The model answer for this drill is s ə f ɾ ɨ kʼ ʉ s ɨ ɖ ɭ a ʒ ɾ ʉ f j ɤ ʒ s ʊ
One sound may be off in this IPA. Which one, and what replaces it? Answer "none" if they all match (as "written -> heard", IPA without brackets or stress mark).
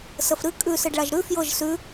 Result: ʊ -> ʉ